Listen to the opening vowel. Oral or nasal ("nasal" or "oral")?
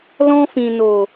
nasal